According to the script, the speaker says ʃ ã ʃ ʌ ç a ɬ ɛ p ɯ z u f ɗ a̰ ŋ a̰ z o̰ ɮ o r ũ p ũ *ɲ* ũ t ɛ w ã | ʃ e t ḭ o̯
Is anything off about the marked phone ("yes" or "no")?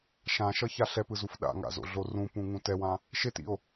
yes